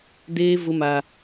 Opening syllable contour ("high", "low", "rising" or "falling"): high